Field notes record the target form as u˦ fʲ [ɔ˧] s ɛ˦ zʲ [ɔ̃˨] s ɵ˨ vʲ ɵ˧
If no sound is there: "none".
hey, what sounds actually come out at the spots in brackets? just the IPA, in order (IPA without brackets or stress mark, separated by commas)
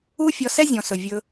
ɔ˧, ɔ̃˨